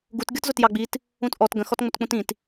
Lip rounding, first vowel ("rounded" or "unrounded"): rounded